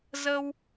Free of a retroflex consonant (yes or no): yes